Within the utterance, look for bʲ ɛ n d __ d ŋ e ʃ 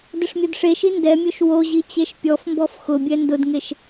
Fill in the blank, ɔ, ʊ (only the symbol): ʊ